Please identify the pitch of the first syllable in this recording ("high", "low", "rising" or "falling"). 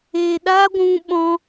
low